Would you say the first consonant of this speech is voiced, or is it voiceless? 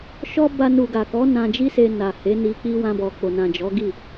voiceless